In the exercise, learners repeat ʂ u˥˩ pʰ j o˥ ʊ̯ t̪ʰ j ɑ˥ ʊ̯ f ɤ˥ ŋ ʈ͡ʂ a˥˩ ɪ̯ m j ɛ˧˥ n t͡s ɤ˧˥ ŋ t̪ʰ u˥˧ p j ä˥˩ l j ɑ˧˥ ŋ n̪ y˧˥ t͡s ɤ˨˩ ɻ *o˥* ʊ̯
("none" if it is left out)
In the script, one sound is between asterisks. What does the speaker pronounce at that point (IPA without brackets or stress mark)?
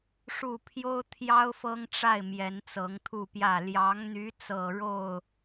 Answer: o˥˩